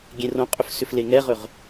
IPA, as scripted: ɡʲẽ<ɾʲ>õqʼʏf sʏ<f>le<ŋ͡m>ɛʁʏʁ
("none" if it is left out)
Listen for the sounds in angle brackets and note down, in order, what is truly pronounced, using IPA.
r, f, ŋ

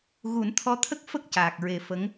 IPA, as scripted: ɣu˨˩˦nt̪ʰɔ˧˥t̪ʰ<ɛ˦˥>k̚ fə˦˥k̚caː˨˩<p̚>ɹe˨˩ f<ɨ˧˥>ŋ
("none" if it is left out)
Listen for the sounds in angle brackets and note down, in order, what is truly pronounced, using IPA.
ə˦˥, k̚, ə˧˥

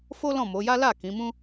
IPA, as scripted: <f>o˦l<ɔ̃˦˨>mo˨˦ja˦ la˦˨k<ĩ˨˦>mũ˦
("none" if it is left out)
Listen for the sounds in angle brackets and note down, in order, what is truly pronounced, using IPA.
f, ɔ̃˦˨, ĩ˨˦

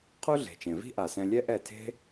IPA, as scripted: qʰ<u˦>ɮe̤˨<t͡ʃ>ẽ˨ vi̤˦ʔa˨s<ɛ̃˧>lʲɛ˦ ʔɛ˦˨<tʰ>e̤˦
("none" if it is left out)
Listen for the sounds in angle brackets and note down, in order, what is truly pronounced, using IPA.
u˦, t͡ʃ, ɛ̃˧, tʰ

